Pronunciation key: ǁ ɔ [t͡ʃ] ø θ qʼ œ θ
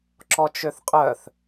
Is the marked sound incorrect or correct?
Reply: correct